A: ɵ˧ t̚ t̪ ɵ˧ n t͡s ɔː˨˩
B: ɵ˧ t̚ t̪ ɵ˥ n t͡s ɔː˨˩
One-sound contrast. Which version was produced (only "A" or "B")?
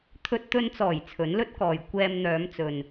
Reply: A